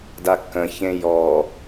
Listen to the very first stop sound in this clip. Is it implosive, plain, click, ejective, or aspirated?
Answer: plain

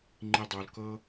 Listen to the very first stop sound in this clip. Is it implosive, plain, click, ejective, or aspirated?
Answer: click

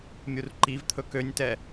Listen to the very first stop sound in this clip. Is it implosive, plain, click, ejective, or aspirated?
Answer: click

